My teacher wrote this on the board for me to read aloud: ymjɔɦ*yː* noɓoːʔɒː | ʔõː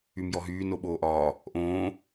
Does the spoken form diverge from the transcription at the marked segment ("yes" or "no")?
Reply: no